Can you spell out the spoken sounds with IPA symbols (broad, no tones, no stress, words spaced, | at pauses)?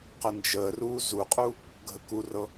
qənd͡ʒəːruː zuqʼu | ɡʱəkurɤ